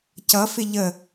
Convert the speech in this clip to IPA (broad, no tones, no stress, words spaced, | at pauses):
cʌfɪ ʎə